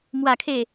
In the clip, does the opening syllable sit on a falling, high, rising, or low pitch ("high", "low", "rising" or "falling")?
low